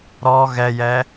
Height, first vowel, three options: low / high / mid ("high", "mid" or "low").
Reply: mid